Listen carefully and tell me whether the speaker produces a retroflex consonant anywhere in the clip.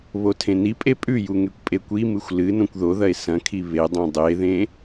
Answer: no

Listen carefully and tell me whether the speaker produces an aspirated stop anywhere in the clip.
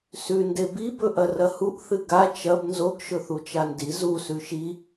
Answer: no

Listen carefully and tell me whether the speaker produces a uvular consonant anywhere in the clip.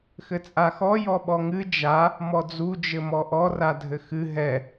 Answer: no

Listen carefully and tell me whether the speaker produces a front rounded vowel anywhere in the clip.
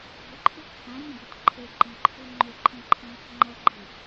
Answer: yes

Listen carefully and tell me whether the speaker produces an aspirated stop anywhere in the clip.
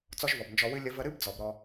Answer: no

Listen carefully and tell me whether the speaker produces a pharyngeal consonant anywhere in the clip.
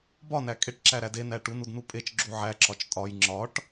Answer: yes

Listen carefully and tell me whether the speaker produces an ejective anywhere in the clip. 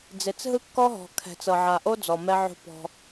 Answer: no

